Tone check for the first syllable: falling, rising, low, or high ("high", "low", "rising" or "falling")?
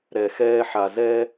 low